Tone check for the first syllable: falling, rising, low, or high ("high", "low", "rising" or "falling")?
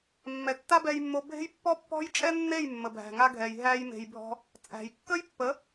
low